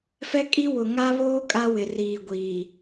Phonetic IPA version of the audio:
fɛ˦kʼi˦ wʊ˨ŋa˦βoː˦ kʼa˦ wɪ˨riː˨ ɡʷiː˨

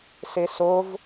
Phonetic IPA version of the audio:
sesov

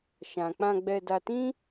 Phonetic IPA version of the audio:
ʃã˨k͡pã˧ɡ͡bɛ˧ da˧tĩ˦

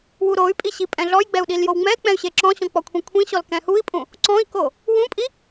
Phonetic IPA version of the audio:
wuɾoy̯pʼi ɕipʼɛ̃ɮɔjɡ͡bɛu̯ ɗiljowŋ͡mɛk͡pɛ̃y̯ ɕeǁɔ̃ɕɔ̃ k͡pɔkʷʰĩkʷʰĩɕɔl kɛ̃hui̯pʼũ | ǀɔ̃i̯ko | wũpʼi

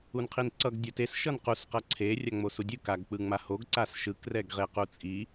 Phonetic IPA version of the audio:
unqʰinǀʌɡ dʲʌtes ʃʌnqus qʌǀʰe rʲaŋ͡mosudʲɯ kaɡk͡pɯŋ͡mahoɡ ǀasʃɯk rɛɡʁequt͡sʼi

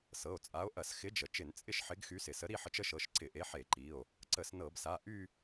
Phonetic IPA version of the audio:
sɤ˩˧˩o̯t͡sʼa˨˥o̯ ʔɐ˧˩˧s xɪ˨˥d͡ʒə˩ t͡ʃɪ˧˩˧nt͡sʼɪ˥˧ʃħɪ˨˥ɡxy˨˥ sɪ˩sə˨˥ ɾi˥˧ħə˨˥t͡ʃə˨˥ʃɤ˩˧˩ʃ ǀɪ˧˩˧ʔe˨˥ ħe˧˩˧ǃi˩˧˩o̯ | ǀə˧˩˧snɤ˧˩˧bsa˩˧˩ ʔy˥˧

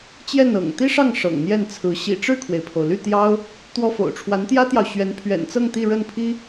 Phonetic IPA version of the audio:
t͡ɕjɛ˥˩nɤ̰˨˩ŋ t̪i˥ʂɑ˥˩ŋ ʂɤ̰˨˩ŋn̪jɛ˥˩nt͡sʰɹ̩˧˥ ɕḭ˨˩ʈ͡ʂɻ̩˥˩kʰwe˩ɪ̯pʰo˩ʊ̯ ly˥˩t̪jɑ˥ʊ̯ | t̪wɔ˥fo̰˨˩ʊ̯ ʈ͡ʂʰwa˧˥nt̪jä˥t̪jɑ˨ʊ̯ɕɥɛ˧˥n pʰɥɛ̰˨˩nt͡sɤ˥˧ŋ t̪i˥˧ɻə˥˩n pʰi˥

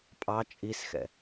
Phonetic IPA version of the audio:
pʼɑ t͡ʃʼisxɛ̰

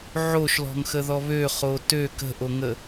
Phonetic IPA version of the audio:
ʕoʃlɔ̤ŋxəðɔ βøχo tø kə̤ʔoŋə

